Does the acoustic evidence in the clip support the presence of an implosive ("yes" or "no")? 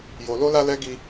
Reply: no